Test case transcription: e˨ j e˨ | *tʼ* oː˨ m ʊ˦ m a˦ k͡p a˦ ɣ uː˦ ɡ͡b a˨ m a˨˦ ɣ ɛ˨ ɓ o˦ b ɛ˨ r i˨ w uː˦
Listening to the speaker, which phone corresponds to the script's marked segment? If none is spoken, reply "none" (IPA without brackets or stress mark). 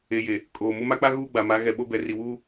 kʼ